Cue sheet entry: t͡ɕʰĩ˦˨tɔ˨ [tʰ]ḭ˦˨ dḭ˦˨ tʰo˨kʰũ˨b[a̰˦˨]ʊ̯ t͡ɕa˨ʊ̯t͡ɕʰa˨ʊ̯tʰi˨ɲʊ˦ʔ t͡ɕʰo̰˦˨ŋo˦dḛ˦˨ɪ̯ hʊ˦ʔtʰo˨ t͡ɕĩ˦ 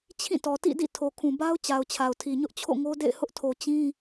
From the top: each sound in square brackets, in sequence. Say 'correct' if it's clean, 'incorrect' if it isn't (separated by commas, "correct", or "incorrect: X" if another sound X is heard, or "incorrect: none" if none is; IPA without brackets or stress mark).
incorrect: t, incorrect: a˦